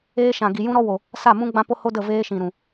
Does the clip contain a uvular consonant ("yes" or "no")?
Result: no